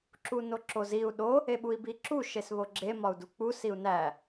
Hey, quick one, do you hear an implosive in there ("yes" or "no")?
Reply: yes